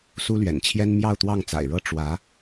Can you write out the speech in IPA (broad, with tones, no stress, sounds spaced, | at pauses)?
s u˥ l ɥ ɛ̰˨˩ n t͡ɕʰ j ɛ˥ n m j ɑ˥˧ ʊ̯ t̪ w ɑ˥˩ ŋ t͡s a̰˨˩ ɪ̯ ɻ ɤ˥ ʈ͡ʂ w ä˧˥